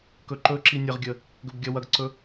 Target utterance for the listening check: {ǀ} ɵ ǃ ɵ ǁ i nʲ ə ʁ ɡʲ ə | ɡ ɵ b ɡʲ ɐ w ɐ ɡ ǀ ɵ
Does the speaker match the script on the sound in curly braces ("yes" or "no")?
no